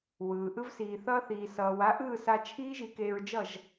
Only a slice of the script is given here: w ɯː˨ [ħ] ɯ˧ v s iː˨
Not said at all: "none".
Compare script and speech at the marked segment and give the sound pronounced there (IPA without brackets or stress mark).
ʔ